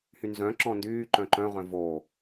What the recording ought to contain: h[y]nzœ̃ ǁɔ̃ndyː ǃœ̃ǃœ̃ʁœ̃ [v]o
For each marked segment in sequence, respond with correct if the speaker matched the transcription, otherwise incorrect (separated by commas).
correct, correct